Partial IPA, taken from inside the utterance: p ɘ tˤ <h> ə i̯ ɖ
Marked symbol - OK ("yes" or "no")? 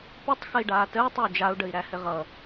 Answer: no